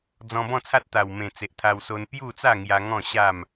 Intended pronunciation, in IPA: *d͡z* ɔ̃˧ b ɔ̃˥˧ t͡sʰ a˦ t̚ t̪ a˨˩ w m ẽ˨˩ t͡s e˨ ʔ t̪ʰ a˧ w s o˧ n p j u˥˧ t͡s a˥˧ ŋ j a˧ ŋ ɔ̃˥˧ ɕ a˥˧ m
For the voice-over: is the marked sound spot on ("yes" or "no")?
yes